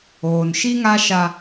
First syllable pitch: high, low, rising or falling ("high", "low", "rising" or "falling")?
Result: low